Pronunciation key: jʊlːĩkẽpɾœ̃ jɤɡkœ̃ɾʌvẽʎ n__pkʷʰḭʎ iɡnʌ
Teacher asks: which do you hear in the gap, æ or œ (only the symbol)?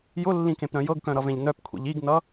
œ